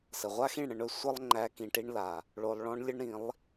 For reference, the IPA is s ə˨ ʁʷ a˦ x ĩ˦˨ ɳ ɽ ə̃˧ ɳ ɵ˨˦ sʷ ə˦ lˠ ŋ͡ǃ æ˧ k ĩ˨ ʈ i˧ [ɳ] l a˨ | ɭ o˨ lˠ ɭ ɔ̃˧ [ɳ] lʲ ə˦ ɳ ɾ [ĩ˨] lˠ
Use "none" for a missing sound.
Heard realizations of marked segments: ɳ, ɳ, ĩ˨˦

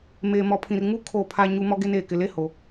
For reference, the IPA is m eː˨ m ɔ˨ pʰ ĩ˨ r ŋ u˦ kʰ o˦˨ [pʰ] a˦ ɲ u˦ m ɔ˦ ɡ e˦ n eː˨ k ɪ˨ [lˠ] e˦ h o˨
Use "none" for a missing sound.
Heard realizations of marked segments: pʰ, l

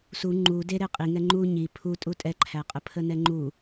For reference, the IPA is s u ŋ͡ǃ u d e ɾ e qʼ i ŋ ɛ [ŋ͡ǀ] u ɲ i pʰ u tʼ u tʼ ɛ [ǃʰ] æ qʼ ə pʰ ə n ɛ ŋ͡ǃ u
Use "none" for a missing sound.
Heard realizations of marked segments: ŋ͡ǃ, ǃʰ

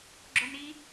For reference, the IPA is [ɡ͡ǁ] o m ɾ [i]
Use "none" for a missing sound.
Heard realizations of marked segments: ɡ͡ǁ, i

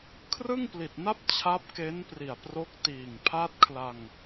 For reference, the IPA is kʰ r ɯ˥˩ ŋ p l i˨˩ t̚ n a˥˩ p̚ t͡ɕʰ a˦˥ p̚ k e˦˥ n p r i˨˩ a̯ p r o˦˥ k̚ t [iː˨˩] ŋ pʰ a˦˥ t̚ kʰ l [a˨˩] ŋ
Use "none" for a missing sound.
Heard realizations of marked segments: iː˨˩, a˧

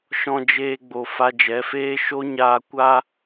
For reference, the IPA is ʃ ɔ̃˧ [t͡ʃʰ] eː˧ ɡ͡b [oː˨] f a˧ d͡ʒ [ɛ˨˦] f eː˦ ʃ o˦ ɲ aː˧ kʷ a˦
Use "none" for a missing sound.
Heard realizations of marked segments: d͡ʒ, o˨, ɛ˨˦

